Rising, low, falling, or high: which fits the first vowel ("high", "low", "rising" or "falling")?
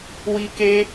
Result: high